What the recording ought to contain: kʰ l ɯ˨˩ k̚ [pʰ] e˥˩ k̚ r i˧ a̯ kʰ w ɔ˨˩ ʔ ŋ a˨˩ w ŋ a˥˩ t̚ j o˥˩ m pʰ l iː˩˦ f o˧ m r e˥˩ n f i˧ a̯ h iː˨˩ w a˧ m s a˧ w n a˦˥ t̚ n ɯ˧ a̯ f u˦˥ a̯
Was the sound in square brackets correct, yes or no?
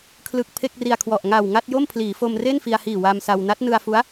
yes